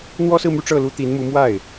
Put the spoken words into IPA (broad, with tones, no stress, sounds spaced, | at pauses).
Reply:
n̪ w ɔ˥ s ɹ̩˥˧ m y˥˧ ʈ͡ʂ ɤ˥˩ l u˥ t̪ i˧˥ n m u˧˥ m w a˥˩ ɪ̯